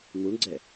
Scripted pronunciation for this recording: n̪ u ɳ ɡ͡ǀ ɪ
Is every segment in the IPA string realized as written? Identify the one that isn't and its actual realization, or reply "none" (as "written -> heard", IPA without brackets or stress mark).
ɪ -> ɛ